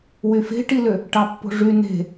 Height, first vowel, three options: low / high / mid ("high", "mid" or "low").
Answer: high